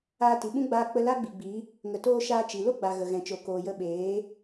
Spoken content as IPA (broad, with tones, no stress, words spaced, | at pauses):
aː˧ti˨ɓũ˦ ɡ͡baː˧ k͡pə˧ la˦ɡ͡bi˨ɡ͡bi˨˦ | ŋə˨toː˧ ʃaː˧t͡ʃi˨ lo˦ɡ͡ba˨ ɣə˨ɣɛ̃˨t͡ʃo˨ koː˨jə˧ɓeː˨˦